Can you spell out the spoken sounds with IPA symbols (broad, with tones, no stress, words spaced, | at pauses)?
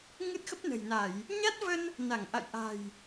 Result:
ŋɨ˦˥t̚xə˦˥p̚nə̤˨˩jna˧˩˨j | ɲa˦˥t̚və˧n | na˧˩ŋʔa̰˧˨j ʔa̤˨˩j